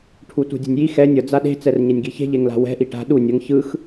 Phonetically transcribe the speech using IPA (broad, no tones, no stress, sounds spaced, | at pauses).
ʈʰ u t ṳ dʲ ṳ nʲ j i x ɛ nʲ ʌ d͡z a ɗ e̤ t͡s ɛ r ɲ ɛ nʲ ɡ i ç e̤ ʎ e ŋ l a̤ w ɛ̤ ʔ i ʈ a̤ ɗ u nʲ ʌ ŋ ç ɯ x